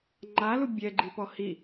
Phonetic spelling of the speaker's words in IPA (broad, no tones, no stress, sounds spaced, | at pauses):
ŋ͡ǃ a l u bʲ ɛ ɡ͡ǃ i p ɔ h i